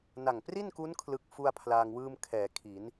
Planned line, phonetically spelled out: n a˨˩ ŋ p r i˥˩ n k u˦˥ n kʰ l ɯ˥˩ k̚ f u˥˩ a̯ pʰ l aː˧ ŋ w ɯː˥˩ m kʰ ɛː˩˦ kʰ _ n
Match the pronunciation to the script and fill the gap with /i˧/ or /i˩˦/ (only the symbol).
i˩˦